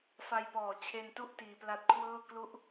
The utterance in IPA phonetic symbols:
f a˧ j p ɔː˨˩ t͡ɕʰ e˧ n t u˥˩ ʔ t iː˧ p l a˦˥ t̚ kʰ w ɤː˥˩ k l u˦˥ ʔ

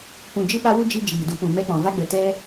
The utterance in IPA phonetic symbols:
p ũ˨ d͡ʒ ɨ˧ ɓ a˧ w u˧ d͡ʒ i˦ d͡ʒ iː˨ d u˧ p ũ˨ m ɛ˧ k͡p ɔ̃˨ v a˧ ɡ͡b ə˨ t ɛ˦

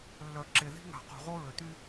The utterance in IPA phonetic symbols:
lː œ˨ ǁ e˨ ð i̤˦ ŋ a̤˨ q ṳ˨ ʁ o˦ ɹ ø˨ t̪ y˦

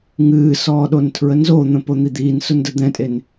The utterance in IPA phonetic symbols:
ŋ ɨː s ɔː ɗ o n tʰ ɹ ə n z o n̪ ə̃ p o n̪ i d̪ iː n s ʊ n d ə d̪ ɛ̃ tʼ e n

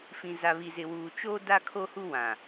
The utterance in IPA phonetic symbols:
f ĩ˨ z a˨ β i˨ z ɪ˨ w uː˨ t͡ʃ o˦ d a˦ kʰ o˦ h u˦ w ã˨

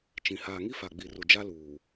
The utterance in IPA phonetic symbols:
t͡ʃ ĩ˨ h aː˨ ŋ i˦ f a˨ ɡ͡b i˨ r u˨ d͡ʒ a˦ l uː˨

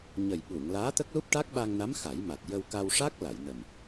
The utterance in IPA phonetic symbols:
ɲ ə˨˩ j ɓ u˨˩˨ ŋ l aː˧˥ t̪ ə˦˥ k̚ l u˦˥ p̚ ʈ a˦˥ k̚ ɓ a˧ ŋ n a˧˥ m x a˨˩˦ j m a˨˩ t̚ j ə˧ w k a˧ w ʂ a˦˥ k̚ l a˨˩˨ j n ə˨˩ m

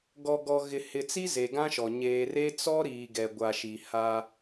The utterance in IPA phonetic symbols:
ɡ ɔ˨ ɡ ɔ˨ ɣ ɪ˨ h ɪ˨ t͡s i˦ z e˨ ɡ ã˦ ʃ ɔ˨ ɲ eː˨ r e˦ t͡s ɔ˦ ɾ iː˨ ɡ ɛ˨ ɡʷ a˨ ʃ i˨ h a˦

